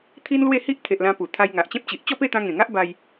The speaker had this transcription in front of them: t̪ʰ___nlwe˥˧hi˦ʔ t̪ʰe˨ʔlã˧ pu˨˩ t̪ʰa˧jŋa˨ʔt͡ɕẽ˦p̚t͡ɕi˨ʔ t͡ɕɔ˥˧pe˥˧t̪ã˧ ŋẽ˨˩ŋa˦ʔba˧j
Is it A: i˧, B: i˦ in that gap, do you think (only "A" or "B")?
B